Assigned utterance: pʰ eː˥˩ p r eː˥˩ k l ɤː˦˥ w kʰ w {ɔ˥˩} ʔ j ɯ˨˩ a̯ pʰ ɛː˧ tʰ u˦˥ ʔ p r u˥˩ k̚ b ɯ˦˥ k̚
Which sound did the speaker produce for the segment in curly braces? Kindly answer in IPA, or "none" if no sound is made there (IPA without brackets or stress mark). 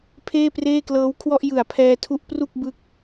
ɔ˥˩